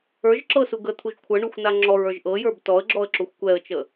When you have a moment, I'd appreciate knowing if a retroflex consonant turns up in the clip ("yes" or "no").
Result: yes